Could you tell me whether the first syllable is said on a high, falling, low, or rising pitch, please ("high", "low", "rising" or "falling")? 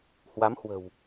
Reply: rising